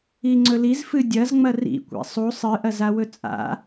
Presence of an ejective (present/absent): present